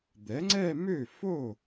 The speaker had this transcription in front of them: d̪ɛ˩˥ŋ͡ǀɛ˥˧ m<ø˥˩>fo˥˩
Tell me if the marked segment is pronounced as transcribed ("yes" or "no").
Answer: yes